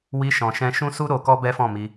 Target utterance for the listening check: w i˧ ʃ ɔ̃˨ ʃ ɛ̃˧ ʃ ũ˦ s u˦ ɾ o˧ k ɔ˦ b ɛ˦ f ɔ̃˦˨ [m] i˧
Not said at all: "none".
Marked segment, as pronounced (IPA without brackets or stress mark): m